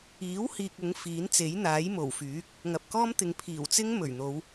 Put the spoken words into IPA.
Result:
iː˨˥ w h iː˨ k̚ ʊ˨˥ ŋ f iː˨˥ n t͡s e˨˥ j n̪ aː˨˥ j m o˨˩ w f yː˨˥ k̚ | ŋ ɐ˨ p̚ k ɔː˥ m t̪ ɪ˨ ŋ pʰ iː˨˩ w t͡s ɪ˥ ŋ m ɵ˨˩ ɥ n̪ o˨˧ w

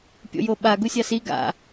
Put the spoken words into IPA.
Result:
pʲ o̰ j o ɓ a ɡ u sʲ a s i ɡ a̰

